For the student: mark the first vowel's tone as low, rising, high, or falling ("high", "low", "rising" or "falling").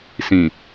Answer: low